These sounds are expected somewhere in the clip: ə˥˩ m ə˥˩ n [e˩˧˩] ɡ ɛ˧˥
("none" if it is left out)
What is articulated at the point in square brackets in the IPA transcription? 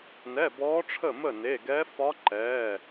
e˩˧˩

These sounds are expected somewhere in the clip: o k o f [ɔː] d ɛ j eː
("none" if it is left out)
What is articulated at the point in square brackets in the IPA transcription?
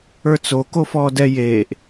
ɔː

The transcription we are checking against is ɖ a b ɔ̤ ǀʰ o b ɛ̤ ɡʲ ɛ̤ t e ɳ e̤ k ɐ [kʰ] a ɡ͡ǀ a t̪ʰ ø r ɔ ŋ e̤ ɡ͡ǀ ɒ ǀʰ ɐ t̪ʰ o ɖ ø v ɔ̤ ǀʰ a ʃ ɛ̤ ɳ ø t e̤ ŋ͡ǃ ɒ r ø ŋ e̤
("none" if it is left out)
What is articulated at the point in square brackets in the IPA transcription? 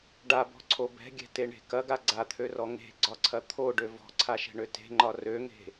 ɡ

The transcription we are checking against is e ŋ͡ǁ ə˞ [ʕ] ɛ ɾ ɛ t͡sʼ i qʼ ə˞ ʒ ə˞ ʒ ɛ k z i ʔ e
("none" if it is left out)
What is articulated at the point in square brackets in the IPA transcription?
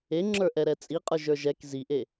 ʔ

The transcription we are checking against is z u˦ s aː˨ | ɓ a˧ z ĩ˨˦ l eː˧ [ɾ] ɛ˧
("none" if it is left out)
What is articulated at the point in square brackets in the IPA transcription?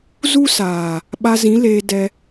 d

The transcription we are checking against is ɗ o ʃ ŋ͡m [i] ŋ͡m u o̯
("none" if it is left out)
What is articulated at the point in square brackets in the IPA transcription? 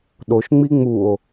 i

